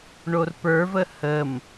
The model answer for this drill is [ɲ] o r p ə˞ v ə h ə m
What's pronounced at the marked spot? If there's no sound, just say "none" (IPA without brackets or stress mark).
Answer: ɳ